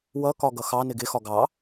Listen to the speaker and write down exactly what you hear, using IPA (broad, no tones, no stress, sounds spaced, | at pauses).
w ʌ k ɒ ɡ ʌ x ɑ n ɪ ɡ ɪ x ɒ ɡ ɑ